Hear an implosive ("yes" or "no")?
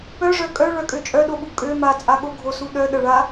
yes